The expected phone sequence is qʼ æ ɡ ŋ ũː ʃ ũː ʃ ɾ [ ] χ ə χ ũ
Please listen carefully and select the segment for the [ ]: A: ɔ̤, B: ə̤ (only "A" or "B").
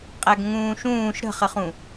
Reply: B